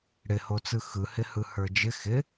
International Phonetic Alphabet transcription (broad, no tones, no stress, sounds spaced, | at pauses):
ɽ ɪ h o t͡s ɯ x ɯ h ɪ h ɯ h ə˞ d͡ʒ ɪ x ɪ